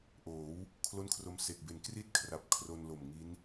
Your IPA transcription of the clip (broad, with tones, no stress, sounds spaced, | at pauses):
ʔ oː˩˦ w | kʰ l o˥˩ n kʰ r o˦˥ m s e˨˩ k̚ b e˨˩ n k r i˥˩ t̚ kʰ r a˨˩ p̚ kʰ r o˧ n l o˨˩ m ŋ i˦˥ n